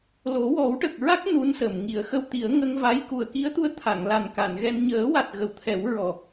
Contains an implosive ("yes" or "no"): no